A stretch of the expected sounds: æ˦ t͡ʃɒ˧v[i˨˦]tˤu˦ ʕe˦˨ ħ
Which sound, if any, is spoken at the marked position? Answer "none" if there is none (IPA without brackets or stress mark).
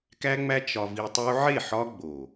i˧